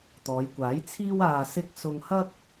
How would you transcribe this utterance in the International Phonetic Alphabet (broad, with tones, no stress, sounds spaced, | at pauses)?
t̪ ɔː˨˧ j kʷ aː˨˥ j t͡sʰ iː˥ w aː˨ s ɪ˧ k̚ s ʊ˧ ŋ h ɐ˥ k̚